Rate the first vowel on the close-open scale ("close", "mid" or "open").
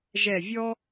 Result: mid